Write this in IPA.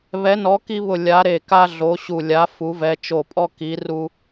β ɛ˨˥ n ɔ˨˥ k i˦ β ʊ˧˩ lʲ a˨˥ ɾ e˧˩ k a˦ ɮ o˨˥ ɕ u˧˩ lʲ a˨˥ f u˨˥ v ɛ˨˥ t͡ʃ o˧˩ pʼ ɔ˦ k i˨˥ r u˦

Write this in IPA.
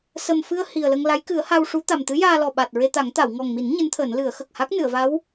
s ə˨˩ m f ɨ˧ ə̯ h i˨˩ ə̯ l ə˧ ŋ l a˧˥ j k ɨ˨˩˦ ə̯ h a˧ w ʂ u˧˥ t̪ a˨˩ m t̪ ɨ˧˥ j aː˧ l ɔ˨˩ ɓ a˨˩ t̚ ɹ e˧ t̪ a˨˩˦ ŋ t̪ a˨˩˨ w ŋ ɔ˨˩ ŋ m i˨˩˦ n ɲ ɨ˧˥ n t̪ʰ əː˨˩˦ n l ɨ˨˩˦ ə̯ x ə˨˩ k̚ h a˦˥ k̚ n ɨ˨˩˨ ə̯ v a˧˥ w

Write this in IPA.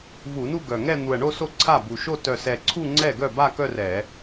v u˧˩˧ n u˥˧ ɡ œ˨˩ ŋ ɛ˥˧ n̪ u˨˩ ɐ̯ ɳ o˥˧ s o˥˩ ǀʰ a˥˩ b u˨˩ ʃ o˥˧ t œ˨˩ s ɛ˨˩ ǀʰ u˥˧ ŋ͡ǀ ɛ˥˩ ɡ œ˥˩ b a˥˧ k œ˥˧ r ɛ˧˩˧

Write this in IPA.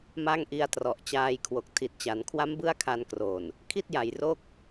m a˥˩ ŋ ʔ i˦˥ a̯ t r ɔ˨˩ ʔ t͡ɕ aː˧ j kʰ w o˨˩ k̚ tʰ i˨˩ t̚ t͡ɕ a˩˦ n kʰ w a˦˥ m b ɯ˥˩ a̯ kʰ a˧ n k r o˨˩ n | kʰ i˥˩ t̚ j a˩˦ j r o˥˩ k̚

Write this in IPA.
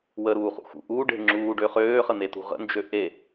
w ə ɾ uː χ ṵ x ṵ ʔ uː ɖ e̤ ŋ͡ǁ uː ɖ ø χ øː χ ə n̪ e t ṳ ʁ ə̰ n d͡ʒ ø ʔ e

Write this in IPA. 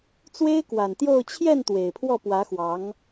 t͡s w e˥ ɪ̯ k w a˨˩ n t̪ j o˥˧ ʊ̯ t͡ɕʰ j ɛ˥˩ n t̪ w e˨˩ ɪ̯ pʰ w ɔ˥˩ p w ä˧˥ x w ɑ˧˥ ŋ

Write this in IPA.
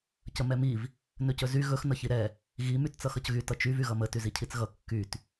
c ə m ɛ m i v | n ɵ c ɵ z y ɣ ɵ x n ʌ ç i ɾ ɛ | ɣ i m y t t͡s ʌ x ʌ c ɣ y t ʌ t͡ʃ y v y ɣ ʌ m ə t y z i cʰ i t͡s ɣ ʌ kː y t

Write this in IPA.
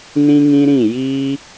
n ĩ˦ ŋ ĩ˦ ɾ ĩ˦˨ j iː˧

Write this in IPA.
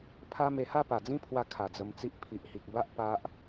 pʰ a˦ m e˧ h a˥˧ p a˨˩ d͡z ĩ˦ pʰ w a˧ kʰ a˨˩ d͡z ə˧ m t͡s i˦ ʔ pʰ i˨ ʔ h i˨ k̚ b a˦ ʔ p a˦ ʔ

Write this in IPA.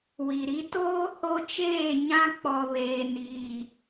w i˨ ɾ i˦ t oː˦ h o˦ t͡ʃ eː˦˨ ɲ ã˦ k͡p ɔ˨ β eː˨ n iː˨

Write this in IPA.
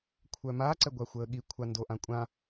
kʷʰ œ m a ǀ ɛ ɡʷ a xʷ əː ɠ i kʷʰ a n d o ʔ ã kʷʼ ã

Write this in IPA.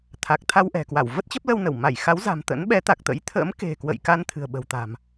t̪ʰ a˨˩ k̚ t̪ʰ a˧ w ʔ ɛ̤˨˩ k w a˧˩ w v ə˦˥ t̚ t͡ɕ ə˦˥ p̚ l ə˧ w n ə˧˩ w m a˧˩ j x a˨˦ w z a̤˨˩ m t̪ ə̰˧˥ n ɓ ɛ˨˦ t̪ a˨˩ k̚ t̪ ə̰˧˥ j t̪ʰ ə̰˧˥ m k e̤˨˩ k w ə̰˧˨ j k a˧ n t̪ʰ ɨ̤˨˩ ə̯ ɓ ə̤˨˩ w t̪ a̤˨˩ m

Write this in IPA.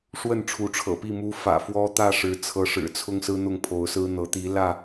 ʂ w ə˥˨ n ʈ͡ʂʰ u˨˦ ʈ͡ʂʰ ɤ̰˨˩ p i˥˨ m u˦ f ä̰˨˩ f w ɔ˦ t̪ ä˥˨ ʂ ɻ̩˨˦ t͡sʰ ɤ˨˦ ʂ ɻ̩˨˩ t͡sʰ ʊ˦ ŋ s ɹ̩˦ n̪ ʊ˥˨ ŋ pʰ o˨˦ ʊ̯ s ɹ̩˦ n̪ ɤ˨˦ t̪ i˨˦ l ä˥˨

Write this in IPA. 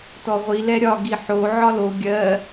t ɔ ʁʷ i l ɛ ɾʲ ɒ ɡ i ħ o ʕ ɒ l o ɡʲ ɜ

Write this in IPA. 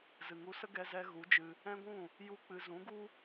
z ɨ˨ ŋ u˧ s ə˦ ɡ ɛ˧ z ɛ˧ ɣ u˨˦ d͡ʒ ɨ˧ | ɛ̃˦ ɡʷ ũ˦˨ | j u˦ k͡p ɨ˧ z ũ˨˦ ɡ u˦

